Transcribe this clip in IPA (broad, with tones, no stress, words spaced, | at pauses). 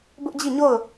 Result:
bʊ˦ʔd͡ʑi˦˨ɲo˦˨ʊ̯